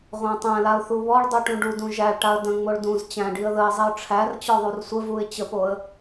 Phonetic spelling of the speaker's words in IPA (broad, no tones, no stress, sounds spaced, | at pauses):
ʁʷ æ̃ tˤ æ̃ l a ʊ̯ θ u β ɔ ɭ dˤ u ʈ ũ ɖ u d ũ ʒ æ ɭ ʈ a ə̯ d ə̃ ŋ͡m o ɭ d ũ z t͡ɕ æ̃ ɖ i ə̯ ð ə ɪ̯ zˤ i ʊ̯ ʈ͡ʂʰ æ r t͡ɕ ɔ ðˤ u r sʷ ə v u ɪ̯ t͡ɕ ə p o ə̯